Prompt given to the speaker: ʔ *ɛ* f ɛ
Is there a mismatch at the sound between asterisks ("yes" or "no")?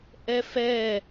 no